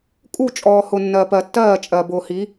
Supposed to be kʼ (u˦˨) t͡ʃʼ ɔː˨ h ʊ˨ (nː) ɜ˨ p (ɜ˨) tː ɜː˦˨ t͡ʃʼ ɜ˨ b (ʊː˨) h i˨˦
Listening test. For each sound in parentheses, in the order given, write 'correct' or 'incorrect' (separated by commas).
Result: correct, correct, correct, correct